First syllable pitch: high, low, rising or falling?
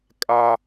high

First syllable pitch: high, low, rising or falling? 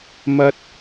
high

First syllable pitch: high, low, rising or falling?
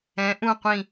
rising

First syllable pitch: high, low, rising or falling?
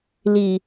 low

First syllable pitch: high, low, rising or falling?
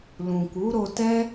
low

